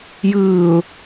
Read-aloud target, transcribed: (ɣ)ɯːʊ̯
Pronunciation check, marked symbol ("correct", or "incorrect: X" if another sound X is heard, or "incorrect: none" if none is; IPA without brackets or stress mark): incorrect: j